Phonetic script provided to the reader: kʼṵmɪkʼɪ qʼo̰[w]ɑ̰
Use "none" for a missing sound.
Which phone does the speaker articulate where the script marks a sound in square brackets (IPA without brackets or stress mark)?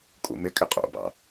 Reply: b